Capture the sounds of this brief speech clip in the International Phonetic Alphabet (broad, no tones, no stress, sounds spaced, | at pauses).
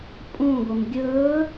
pʼ ũ ɡʷ ɪ m ɡʲ ɵː